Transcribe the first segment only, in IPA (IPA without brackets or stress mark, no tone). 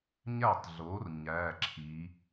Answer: ɲ